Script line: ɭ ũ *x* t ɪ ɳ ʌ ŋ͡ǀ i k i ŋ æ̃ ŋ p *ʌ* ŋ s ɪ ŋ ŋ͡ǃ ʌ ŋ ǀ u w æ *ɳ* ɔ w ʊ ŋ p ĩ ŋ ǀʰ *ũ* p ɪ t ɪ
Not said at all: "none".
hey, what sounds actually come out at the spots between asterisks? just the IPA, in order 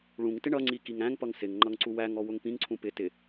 ŋ, ʌ, ŋ, ũ

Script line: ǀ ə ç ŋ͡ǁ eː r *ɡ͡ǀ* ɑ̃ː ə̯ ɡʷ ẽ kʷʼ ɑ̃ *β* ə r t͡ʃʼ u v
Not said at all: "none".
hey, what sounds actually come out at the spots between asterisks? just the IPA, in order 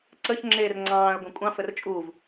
ŋ͡ǀ, f

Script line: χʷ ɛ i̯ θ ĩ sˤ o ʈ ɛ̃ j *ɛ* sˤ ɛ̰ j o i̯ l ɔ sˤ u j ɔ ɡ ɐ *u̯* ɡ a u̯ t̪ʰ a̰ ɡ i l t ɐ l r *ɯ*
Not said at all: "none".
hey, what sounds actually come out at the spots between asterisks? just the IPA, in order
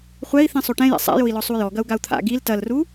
ɛ̰, u̯, u

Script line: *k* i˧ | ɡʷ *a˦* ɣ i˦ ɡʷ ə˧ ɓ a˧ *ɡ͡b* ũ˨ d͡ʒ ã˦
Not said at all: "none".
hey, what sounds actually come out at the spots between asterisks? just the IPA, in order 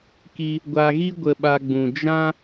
k, a˧, ɡ͡b

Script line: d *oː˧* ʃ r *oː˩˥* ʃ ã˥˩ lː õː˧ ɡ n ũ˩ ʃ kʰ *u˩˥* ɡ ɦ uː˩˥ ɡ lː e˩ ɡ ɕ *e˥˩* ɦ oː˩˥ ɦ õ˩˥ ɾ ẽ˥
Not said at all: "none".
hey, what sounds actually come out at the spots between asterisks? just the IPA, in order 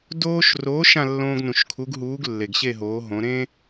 oː˧, oː˩˥, u˩˥, e˥˩

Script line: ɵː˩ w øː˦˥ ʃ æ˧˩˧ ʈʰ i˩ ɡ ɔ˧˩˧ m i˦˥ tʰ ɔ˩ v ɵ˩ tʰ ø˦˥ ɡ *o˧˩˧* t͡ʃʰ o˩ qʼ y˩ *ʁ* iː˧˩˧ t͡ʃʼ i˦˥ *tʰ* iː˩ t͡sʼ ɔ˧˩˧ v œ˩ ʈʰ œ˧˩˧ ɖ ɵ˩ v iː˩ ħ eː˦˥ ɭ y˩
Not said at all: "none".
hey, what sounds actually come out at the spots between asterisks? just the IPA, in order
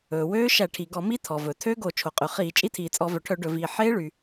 o˧˩˧, χ, tʰ

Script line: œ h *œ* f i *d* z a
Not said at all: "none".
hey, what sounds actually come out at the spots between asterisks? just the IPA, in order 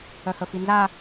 ə, n

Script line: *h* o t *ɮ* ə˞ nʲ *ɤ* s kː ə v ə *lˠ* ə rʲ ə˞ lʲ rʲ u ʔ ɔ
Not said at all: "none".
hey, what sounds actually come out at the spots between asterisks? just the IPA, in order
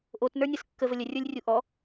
ʔ, n, ɤ, lʲ

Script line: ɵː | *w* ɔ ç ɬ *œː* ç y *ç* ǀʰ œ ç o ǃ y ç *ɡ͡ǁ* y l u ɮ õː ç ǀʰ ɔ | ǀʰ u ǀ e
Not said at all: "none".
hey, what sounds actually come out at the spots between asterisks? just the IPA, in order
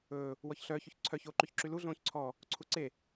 w, œː, ç, ǁ

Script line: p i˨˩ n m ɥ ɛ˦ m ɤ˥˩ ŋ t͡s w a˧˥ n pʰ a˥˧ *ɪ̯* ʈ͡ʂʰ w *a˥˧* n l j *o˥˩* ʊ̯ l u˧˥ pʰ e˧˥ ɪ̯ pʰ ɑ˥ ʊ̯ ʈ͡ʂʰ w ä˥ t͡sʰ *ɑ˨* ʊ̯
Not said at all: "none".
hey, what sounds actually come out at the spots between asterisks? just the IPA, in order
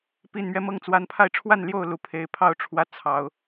ɪ̯, a˥˧, o˥˩, ɑ˨˩˦

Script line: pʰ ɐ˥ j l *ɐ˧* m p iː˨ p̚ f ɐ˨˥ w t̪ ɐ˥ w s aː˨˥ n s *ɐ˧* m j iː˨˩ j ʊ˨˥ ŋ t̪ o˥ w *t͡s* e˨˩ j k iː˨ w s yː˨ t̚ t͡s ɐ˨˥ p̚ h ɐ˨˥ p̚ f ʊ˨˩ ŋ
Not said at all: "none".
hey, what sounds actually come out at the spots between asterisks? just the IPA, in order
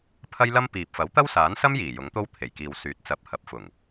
ɐ˥, ɐ˥, t̪ʰ

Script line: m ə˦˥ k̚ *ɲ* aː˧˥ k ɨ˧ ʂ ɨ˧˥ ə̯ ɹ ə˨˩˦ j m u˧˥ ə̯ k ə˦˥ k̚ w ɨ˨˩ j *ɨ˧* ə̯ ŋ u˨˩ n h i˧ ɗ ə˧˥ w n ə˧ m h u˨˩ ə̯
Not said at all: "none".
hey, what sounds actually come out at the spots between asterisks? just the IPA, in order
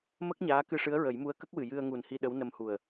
ɲ, ɨ˧

